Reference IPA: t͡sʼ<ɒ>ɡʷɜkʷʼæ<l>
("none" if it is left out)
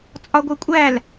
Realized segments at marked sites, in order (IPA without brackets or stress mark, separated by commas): ɒ, l